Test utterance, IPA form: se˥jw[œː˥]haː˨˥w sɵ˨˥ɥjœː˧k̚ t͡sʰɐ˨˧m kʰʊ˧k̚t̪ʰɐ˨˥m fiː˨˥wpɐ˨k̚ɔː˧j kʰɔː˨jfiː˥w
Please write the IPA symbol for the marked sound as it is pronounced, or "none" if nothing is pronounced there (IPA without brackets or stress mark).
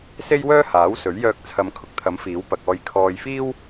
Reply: œː˥